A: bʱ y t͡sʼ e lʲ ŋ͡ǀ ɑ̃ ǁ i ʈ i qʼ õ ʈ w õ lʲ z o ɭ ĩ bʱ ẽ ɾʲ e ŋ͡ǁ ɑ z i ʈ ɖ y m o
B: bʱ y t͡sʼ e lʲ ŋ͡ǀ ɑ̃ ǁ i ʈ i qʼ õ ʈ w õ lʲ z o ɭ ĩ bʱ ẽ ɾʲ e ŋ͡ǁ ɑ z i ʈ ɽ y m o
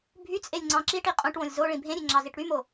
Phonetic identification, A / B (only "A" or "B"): B